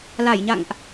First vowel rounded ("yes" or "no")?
no